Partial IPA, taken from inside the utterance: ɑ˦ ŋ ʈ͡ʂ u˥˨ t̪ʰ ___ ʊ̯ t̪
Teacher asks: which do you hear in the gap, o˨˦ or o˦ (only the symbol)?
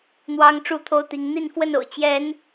o˦